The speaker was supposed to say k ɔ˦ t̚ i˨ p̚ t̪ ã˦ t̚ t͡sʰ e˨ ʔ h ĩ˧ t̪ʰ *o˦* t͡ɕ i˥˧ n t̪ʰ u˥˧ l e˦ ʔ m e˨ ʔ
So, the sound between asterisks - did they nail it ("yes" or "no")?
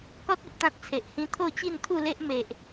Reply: no